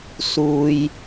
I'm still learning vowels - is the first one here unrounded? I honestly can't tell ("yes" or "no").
no